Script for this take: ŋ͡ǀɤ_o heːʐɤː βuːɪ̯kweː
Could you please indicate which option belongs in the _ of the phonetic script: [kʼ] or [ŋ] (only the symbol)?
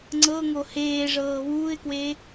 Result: ŋ